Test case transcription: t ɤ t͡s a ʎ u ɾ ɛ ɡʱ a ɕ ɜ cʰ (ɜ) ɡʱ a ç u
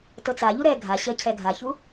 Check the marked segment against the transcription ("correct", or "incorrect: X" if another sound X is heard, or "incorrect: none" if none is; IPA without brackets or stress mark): incorrect: ɛ